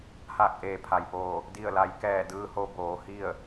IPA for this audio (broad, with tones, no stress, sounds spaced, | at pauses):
h aː˧˩ k̚ ʔ eː˩ pʰ a˩ j p oː˧˩ | d i˧˩ ə̯ l a˩˧ j k ɛː˧˩ d ɯː˧ h o˧ b oː˩˧ h i˥˨ ə̯